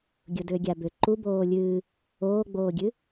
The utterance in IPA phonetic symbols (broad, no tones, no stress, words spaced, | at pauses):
ɡʲʊdʏːɡʲabʏ ǃuboː lʲɨː | oːɡ͡boːɡʲɨ